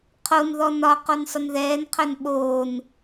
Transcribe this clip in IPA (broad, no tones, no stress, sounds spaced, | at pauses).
qʰ o n ð ɔ n ɒ q o n sˤ ʊ n ð ɛː n qʰ œ n ɓ oː n